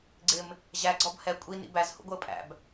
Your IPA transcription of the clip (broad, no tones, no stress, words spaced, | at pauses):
ɡ͡ǀɪm | ʑæɡ͡ǀɔb hɛ kʷʼinḭ bæzhṵɡʷəː pʼæ̰b